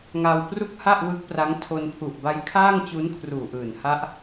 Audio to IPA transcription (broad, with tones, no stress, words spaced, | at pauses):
ŋa˧wpru˥˩k̚ ha˥˩ʔwɯ˦˥k̚ pra˦˥ŋtʰo˧n pʰu˨˩ʔba˦˥jkʰaː˥˩ŋ t͡ɕu˦˥nkʰruː˨˩ʔɯː˨˩n ha˦˥ʔ